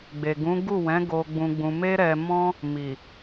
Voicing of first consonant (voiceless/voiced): voiced